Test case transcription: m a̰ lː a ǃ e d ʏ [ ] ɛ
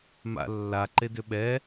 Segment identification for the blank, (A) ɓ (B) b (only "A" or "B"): A